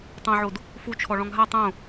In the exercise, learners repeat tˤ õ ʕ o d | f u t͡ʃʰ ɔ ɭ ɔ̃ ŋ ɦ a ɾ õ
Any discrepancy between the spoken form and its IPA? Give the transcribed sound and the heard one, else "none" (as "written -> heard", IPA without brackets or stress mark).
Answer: ɾ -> tˤ